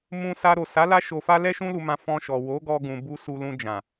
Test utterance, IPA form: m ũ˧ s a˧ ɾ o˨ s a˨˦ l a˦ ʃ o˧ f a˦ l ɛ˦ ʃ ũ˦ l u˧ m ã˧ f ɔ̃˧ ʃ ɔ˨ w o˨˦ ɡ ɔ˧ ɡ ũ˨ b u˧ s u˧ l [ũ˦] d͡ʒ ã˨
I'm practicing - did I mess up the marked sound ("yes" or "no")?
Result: yes